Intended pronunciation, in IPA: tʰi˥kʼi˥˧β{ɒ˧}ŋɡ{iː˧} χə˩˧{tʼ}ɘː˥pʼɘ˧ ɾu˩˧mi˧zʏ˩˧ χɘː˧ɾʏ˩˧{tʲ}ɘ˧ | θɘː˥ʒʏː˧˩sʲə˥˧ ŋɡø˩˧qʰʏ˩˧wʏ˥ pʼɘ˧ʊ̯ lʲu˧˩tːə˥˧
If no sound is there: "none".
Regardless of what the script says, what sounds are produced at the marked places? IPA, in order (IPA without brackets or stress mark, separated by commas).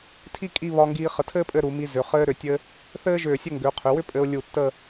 ɒ˧, iː˧, tʰ, tʲ